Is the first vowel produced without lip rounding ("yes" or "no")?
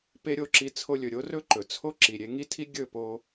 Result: yes